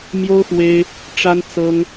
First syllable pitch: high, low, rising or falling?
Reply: high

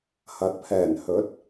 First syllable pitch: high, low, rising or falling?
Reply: rising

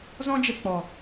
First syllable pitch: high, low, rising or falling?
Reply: high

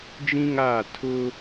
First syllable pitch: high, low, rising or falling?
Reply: high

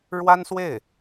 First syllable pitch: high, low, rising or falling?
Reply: high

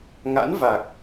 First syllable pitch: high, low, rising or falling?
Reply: rising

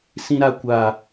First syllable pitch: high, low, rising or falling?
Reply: low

